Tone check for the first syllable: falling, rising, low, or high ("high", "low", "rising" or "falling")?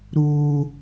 high